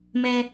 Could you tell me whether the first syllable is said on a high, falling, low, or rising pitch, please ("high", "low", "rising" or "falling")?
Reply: high